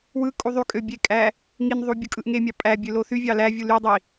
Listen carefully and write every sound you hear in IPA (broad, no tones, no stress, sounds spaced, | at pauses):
w ɯ kʼ u ðˤ y kʼ ø bʲ e kʼ æ | ŋ i n ðˤ u bʲ ɯ kʼ ɯ ʔ ŋ e mʲ ɑ pʼ æ bʲ ø l o θ y vʲ ɑ l æ vʲ u l y dˤ i